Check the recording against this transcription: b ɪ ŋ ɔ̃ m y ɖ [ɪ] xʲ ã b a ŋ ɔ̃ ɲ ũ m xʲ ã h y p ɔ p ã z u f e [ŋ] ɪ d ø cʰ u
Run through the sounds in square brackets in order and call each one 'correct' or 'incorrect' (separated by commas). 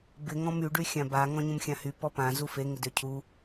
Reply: incorrect, correct